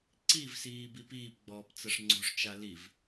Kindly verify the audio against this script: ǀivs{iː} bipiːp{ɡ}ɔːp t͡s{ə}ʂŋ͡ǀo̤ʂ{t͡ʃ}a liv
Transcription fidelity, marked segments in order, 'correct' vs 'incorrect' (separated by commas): correct, incorrect, correct, correct